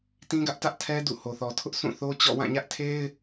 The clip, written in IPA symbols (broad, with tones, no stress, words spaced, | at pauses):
tĩ˦ɡä˦ʔtä˦ʔ tʰɛ˦ dṵ˦˨ho˨θɔ˨ tʰʊ˦ʔ sũ˦˨θo˦ t͡ɕɔ̰˦˨ wã˦˨ɲä˦ʔtʰe˦ɪ̯